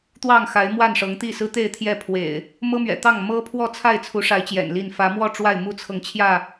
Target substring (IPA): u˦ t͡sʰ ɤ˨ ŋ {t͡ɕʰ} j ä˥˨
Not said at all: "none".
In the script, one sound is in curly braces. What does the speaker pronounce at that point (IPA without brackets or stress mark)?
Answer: t͡ɕʰ